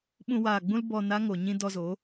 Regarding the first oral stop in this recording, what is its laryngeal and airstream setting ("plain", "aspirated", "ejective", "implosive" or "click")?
implosive